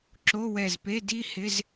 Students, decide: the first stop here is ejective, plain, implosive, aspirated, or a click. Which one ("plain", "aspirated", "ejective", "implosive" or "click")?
click